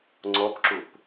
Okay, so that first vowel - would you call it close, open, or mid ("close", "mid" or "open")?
mid